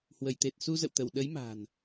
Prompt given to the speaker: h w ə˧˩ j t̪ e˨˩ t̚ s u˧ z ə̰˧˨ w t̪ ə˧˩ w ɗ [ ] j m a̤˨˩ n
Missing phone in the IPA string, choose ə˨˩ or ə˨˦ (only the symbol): ə˨˦